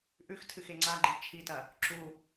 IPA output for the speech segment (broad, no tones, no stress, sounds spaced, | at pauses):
ʔ ʉ x tʰ ɨ x e ŋ͡ǀ a ɡ͡ǃ i t͡ʃʰ i t ɐ | ǁ u